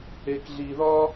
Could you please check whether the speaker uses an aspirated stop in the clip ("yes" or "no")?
no